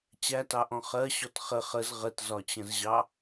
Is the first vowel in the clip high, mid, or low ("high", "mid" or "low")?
low